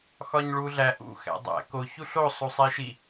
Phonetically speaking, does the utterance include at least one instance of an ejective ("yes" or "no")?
no